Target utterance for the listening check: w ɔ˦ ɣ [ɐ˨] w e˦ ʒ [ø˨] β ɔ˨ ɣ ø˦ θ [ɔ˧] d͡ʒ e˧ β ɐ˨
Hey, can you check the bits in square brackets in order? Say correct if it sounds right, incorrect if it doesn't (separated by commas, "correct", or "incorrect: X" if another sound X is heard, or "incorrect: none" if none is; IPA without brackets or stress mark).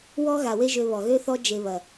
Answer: incorrect: a˨, incorrect: ø˧, incorrect: ɔ˦